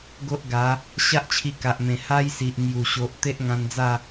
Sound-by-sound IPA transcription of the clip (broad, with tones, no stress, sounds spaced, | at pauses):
ɡ o˦ ʔ ɡ a˨˦ | ɕ a˦ ʔ t͡ɕʰ i˧ k a˨ ʔ m ẽ˨˩ h a˦ j s i˨ ʔ m j u˨˩ ɕ o˨ ʔ t̪ e˦ ʔ ŋ ã˧ n d͡z a˥˧